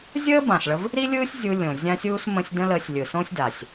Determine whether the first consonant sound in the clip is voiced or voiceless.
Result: voiced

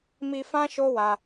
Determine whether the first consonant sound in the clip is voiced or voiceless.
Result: voiced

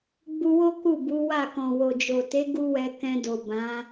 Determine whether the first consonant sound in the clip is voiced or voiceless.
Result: voiced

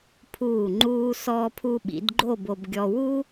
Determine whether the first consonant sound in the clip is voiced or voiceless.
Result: voiceless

